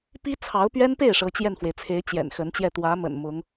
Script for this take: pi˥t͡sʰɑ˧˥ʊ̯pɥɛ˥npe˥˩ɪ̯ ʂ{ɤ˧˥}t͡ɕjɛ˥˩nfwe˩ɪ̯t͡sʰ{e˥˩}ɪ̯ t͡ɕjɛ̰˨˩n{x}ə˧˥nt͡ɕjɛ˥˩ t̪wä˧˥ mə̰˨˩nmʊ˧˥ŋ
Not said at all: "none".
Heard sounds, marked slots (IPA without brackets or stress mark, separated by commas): ɤ˧˥, e˧˥, x